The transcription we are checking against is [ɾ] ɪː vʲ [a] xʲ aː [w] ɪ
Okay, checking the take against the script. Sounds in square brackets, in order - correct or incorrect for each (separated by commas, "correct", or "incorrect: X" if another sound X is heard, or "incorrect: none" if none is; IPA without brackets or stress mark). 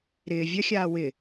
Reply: correct, incorrect: ɐ, correct